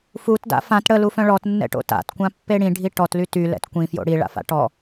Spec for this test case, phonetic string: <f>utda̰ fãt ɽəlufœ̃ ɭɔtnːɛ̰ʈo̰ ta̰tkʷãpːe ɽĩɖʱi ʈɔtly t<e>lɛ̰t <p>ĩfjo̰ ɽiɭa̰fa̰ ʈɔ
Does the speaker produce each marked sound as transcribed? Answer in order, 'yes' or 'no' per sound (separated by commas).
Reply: yes, no, no